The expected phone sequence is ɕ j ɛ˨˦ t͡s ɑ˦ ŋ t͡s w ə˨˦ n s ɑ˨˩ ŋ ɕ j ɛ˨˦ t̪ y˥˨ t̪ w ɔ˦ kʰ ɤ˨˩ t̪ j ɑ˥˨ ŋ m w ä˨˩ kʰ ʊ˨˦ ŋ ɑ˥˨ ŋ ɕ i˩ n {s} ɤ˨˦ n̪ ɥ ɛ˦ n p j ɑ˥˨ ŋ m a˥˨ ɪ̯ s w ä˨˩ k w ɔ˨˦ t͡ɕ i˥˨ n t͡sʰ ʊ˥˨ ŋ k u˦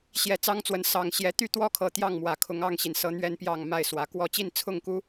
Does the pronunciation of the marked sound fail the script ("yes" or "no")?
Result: no